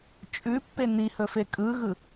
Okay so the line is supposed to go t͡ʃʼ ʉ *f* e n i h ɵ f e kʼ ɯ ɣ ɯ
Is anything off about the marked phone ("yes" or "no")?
yes